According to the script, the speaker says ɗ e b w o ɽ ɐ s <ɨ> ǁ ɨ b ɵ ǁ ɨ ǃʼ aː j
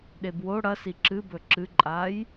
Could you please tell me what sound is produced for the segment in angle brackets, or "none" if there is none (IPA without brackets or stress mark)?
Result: i